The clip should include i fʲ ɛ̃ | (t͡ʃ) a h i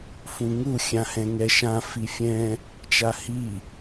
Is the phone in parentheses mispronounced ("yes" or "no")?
no